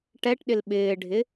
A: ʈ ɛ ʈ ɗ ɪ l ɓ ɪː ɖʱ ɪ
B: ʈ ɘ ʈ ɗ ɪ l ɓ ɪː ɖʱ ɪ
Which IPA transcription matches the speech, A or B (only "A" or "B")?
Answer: A